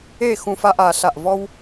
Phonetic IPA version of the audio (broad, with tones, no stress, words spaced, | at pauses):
e˥˨ xũ˦fa˦ʔa˩˧ ɬa˧˩ʔvɔ˦w